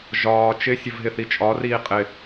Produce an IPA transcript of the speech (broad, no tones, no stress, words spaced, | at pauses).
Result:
ʒɒː t͡ʃɪsʲəv ɦɪθit͡ʃʼɒriː qʼɪ